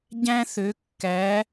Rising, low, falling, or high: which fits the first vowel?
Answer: high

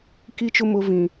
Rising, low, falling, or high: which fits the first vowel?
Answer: high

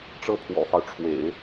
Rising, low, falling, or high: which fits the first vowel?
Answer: falling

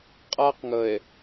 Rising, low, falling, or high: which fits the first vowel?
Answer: high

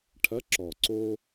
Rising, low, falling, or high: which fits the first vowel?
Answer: rising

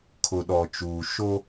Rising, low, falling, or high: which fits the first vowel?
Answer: low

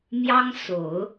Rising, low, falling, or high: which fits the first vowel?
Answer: high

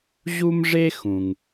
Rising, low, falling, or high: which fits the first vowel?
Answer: high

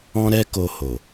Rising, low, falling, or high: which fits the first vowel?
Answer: high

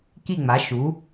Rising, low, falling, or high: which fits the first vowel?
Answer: falling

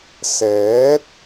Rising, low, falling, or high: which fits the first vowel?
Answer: rising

